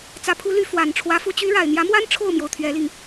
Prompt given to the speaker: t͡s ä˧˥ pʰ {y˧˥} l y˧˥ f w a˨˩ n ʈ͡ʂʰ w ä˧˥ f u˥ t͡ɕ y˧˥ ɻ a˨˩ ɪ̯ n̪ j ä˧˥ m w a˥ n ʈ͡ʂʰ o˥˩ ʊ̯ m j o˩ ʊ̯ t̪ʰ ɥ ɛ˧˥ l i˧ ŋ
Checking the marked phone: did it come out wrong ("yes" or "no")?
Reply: yes